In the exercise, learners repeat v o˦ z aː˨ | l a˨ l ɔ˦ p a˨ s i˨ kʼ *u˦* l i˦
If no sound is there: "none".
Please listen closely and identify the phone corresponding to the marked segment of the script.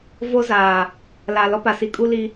u˦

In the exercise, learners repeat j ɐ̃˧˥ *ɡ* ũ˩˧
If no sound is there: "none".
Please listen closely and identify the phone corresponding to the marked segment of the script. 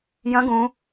ɡ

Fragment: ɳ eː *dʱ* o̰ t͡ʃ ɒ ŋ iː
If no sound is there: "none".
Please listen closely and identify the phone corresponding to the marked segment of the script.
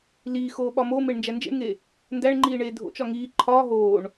dʱ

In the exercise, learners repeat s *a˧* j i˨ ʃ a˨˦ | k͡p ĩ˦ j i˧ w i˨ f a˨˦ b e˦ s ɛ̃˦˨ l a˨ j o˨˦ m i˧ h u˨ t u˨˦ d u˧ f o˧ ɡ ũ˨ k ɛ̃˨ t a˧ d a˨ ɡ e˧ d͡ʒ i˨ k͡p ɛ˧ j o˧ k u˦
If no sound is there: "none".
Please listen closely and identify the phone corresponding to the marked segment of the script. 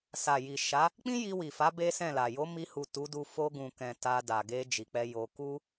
a˨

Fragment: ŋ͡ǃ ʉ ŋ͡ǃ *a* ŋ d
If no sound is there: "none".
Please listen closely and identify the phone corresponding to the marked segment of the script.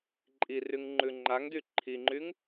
a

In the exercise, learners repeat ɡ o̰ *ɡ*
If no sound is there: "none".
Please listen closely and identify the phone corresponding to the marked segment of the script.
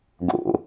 none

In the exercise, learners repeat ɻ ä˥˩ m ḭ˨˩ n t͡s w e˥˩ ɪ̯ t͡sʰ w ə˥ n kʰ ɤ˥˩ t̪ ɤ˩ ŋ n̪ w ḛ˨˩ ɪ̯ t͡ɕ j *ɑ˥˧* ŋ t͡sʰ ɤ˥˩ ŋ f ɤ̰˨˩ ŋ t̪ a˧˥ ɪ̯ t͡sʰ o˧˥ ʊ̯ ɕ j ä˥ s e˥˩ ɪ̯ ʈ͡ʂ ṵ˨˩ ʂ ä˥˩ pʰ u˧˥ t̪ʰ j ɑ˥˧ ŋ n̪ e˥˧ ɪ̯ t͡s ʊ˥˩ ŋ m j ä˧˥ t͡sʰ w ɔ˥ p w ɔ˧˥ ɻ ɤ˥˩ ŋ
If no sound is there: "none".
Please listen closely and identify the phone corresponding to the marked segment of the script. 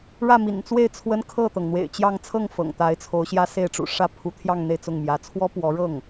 ɑ˥˧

